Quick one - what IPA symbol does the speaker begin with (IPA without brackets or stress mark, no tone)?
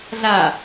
ɮ